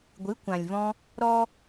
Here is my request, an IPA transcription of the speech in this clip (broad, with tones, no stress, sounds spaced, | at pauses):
ɡʷ ɨ˨˦ kʷ ã˨ lʲ v ɔ̃˧ | ɾ ɔ˦